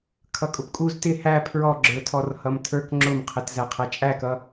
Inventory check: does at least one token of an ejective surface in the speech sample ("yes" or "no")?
yes